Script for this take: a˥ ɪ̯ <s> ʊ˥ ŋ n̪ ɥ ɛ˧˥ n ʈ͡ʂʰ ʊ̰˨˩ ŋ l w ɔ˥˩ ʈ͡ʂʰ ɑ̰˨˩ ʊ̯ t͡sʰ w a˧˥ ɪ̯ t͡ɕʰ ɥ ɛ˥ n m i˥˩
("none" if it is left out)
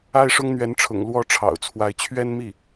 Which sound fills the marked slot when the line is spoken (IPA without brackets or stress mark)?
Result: ʂ